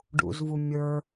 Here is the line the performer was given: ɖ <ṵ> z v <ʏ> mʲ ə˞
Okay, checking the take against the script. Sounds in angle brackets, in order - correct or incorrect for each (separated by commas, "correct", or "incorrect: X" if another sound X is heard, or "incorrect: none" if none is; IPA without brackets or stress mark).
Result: correct, incorrect: u